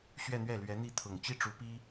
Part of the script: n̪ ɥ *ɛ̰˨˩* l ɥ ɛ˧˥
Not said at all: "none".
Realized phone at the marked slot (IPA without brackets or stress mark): ɛ˥˩